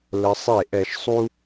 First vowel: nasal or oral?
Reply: oral